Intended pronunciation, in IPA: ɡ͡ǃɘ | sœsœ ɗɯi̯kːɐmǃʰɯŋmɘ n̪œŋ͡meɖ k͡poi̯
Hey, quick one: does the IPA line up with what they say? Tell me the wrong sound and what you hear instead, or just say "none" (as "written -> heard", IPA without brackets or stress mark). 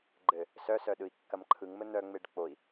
none